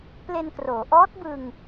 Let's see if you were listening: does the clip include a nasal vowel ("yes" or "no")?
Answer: no